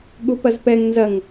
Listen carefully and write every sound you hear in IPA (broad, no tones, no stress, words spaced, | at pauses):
ɠupɐzpɛŋ nzɐŋ